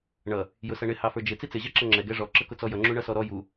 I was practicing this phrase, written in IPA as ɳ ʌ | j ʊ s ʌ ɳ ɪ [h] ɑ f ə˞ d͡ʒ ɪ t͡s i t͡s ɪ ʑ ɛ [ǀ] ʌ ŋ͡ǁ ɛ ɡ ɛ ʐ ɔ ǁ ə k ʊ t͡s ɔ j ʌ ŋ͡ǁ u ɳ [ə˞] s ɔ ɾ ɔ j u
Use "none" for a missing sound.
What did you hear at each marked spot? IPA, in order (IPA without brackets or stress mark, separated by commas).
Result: h, ǁ, ʌ